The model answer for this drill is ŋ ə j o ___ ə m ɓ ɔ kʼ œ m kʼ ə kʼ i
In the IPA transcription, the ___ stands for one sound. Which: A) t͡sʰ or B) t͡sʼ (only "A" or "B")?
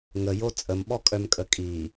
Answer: B